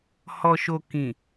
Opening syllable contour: low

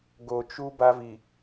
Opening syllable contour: low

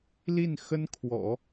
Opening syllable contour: falling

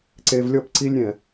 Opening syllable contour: low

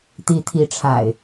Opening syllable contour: rising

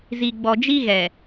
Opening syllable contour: low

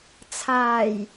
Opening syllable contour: low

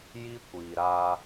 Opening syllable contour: high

